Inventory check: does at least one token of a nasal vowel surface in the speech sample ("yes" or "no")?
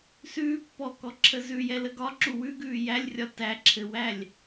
no